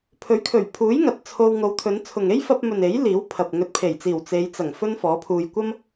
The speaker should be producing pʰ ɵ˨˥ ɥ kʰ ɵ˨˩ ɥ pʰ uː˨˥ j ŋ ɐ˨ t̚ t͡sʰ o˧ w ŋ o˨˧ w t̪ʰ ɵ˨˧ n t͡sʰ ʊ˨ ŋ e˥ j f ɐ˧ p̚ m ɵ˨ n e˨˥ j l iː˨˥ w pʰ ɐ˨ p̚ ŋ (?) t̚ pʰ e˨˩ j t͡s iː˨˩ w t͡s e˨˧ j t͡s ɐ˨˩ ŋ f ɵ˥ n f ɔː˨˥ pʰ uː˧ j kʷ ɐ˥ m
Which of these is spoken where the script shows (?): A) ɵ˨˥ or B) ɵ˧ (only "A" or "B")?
B